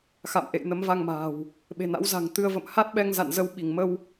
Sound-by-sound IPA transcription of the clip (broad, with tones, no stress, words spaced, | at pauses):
xa̰˧˨mʔḛ˧˨j nə˨˦mva˧ŋma̤ː˨˩w | ɓe̤˨˩na̰˧˥w za̤˨˩ŋt̪ɨ˧ə̯ və̰˧˨mha˦˥t̚ɓɛ˧ŋza̰˧˨n zə˨˦wɓi˧˩ŋ mə˧w